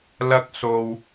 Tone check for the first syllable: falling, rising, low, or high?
high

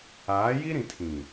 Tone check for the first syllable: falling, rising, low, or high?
rising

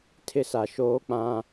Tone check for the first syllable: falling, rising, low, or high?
high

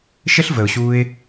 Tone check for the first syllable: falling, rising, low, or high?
high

